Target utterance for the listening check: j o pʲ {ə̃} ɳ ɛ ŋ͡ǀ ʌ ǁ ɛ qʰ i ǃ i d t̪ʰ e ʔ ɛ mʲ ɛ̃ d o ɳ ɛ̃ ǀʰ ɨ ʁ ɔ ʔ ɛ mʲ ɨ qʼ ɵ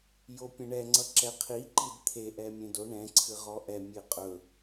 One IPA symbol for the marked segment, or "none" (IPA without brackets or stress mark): ə̃